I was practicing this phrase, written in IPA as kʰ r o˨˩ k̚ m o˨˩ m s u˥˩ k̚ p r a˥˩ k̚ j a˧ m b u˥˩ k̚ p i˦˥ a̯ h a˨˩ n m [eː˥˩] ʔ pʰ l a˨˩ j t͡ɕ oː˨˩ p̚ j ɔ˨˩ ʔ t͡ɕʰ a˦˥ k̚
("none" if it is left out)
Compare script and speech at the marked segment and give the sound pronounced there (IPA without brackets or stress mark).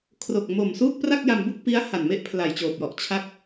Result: e˥˩